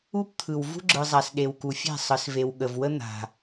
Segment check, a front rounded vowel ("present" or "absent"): absent